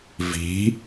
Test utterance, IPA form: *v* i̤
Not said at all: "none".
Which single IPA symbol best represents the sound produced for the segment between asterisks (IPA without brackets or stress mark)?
v